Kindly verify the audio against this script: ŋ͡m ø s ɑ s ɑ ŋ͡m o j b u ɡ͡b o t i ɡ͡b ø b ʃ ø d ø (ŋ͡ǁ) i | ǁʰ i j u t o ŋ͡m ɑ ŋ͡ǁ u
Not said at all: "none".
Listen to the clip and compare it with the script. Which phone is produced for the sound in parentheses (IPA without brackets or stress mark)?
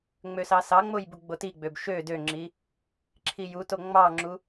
ŋ͡ǁ